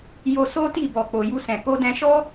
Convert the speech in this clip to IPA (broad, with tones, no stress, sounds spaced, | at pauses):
j o˧ s o˦ t i˦˨ b ɔ˨ k͡p o˨ j u˧ s ɛ̃˨ k o˧ d ɛ̃˧ ʃ ɔ˦